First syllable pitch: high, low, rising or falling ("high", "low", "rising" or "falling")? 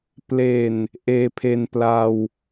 low